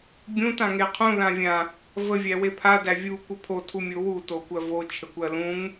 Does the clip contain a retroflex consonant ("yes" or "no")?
no